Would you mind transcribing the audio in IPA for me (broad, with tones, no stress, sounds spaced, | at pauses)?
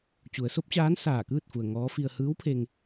t͡ɕ u˩˧ ə̯ s o˧˥ p̚ t͡ɕ aː˧˥ n s aː˧˩ k ɯː˥˨ t̚ f u˩ ə̯ ŋ ɔː˧˥ f i˧ ə̯ h ɯː˧˥ w pʰ e˧ ŋ